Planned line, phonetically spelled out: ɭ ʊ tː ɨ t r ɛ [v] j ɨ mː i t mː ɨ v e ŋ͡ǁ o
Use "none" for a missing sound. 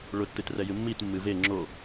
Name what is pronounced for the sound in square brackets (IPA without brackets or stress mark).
none